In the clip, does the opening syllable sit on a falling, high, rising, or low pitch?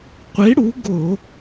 rising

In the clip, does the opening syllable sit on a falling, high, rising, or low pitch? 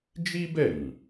high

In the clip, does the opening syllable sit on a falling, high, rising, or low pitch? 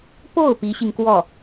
falling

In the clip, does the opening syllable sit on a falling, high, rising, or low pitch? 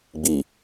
low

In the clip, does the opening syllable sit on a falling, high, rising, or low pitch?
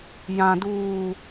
high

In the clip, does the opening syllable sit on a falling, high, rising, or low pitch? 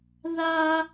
high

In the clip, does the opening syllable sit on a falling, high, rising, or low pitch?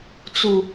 low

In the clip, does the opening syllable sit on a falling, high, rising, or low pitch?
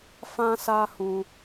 high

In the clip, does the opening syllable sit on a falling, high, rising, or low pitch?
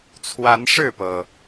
rising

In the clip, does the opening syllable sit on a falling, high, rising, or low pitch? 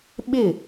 falling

